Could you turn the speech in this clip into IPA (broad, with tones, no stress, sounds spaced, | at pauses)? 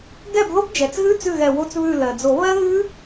ɡ ɛ˥˩ b ð o˦˥ b d͡ʒ ɛ˩ t͡s ɣ ʉ˧˥˧ t͡s ʉ˥˩ ɣ ɛ˧˩ w o˧˥˧ t͡s β ʉ˧˩ l ɜ˩ d͡z o˨˩˦ β ɜ˦˥ ɣ ʉ˦˥